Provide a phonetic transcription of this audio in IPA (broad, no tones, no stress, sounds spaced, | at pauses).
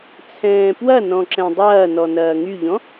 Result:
t͡sʰ ɛ̃ː p w ɐ n ɔ̃ ǁ ɛ̃ dˤ ɐː n ɔ n ɐː ŋ y ʎ ɔ̃